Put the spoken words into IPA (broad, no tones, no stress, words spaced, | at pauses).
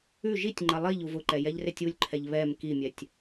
ʉ ʒitʲŋ͡ǃɐ lˠiʎ uvʊǃɛ jɛʎretʲulʲǃʰɛʎ βɛm kimʲɛtʲ